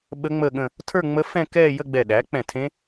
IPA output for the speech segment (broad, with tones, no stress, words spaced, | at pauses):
ɓə˦˥ ŋ͡məː˥˧ɠə̃˥˧ | tʰə˞˥˧ŋ͡mə˦˥ fɛ̃˥˧kɛː˥˧ jə˥˧ɡ͡bɛ˧˩ɗæ˩˥ k͡pɛ̃˧˩tʰẽ˦˥